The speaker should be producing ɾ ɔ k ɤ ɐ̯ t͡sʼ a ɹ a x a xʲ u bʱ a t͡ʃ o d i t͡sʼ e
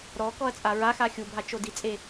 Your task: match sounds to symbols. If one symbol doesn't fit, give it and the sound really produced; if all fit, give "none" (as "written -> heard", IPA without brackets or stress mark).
ɤ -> ɔ